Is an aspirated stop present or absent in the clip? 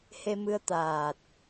absent